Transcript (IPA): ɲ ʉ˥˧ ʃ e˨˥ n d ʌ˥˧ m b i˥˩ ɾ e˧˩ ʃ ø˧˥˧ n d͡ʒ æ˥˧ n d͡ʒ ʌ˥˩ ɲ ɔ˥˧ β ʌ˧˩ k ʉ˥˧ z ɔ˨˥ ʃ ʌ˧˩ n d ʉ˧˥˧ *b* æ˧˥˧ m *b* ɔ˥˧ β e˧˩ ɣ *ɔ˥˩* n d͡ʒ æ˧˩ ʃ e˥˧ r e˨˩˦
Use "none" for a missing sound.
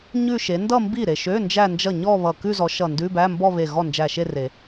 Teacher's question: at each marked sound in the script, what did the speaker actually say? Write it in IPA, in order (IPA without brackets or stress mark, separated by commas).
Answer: b, b, ɔ˥˩